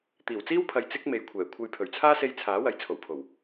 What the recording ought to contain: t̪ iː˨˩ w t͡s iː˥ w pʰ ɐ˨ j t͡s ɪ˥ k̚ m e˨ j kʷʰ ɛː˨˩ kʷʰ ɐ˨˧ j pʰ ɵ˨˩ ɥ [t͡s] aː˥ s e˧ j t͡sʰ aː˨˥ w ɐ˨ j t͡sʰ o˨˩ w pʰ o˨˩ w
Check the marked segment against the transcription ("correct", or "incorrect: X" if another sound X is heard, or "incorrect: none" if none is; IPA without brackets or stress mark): incorrect: t͡sʰ